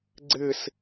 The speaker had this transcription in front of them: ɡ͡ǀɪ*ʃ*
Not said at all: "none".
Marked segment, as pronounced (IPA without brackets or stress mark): s